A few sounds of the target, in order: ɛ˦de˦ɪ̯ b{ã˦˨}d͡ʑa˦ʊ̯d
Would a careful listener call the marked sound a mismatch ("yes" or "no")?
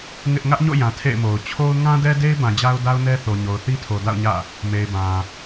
yes